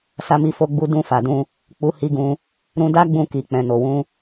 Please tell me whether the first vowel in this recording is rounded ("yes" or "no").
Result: no